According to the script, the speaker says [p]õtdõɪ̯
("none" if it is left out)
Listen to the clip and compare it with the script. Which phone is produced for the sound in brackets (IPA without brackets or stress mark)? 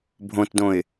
bʱ